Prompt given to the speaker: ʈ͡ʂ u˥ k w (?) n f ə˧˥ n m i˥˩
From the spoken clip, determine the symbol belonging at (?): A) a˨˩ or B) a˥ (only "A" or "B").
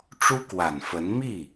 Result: A